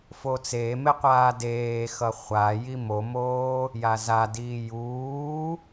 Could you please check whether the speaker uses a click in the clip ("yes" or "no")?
no